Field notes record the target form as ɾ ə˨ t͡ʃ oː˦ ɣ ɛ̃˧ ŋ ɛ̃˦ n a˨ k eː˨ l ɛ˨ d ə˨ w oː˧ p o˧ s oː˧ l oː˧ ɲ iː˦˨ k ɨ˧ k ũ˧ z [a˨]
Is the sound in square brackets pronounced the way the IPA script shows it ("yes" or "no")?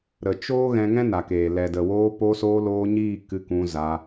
no